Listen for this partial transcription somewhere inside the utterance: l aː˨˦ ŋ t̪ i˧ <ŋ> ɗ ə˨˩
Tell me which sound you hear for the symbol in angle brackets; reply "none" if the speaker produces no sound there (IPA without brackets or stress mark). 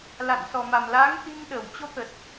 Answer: ŋ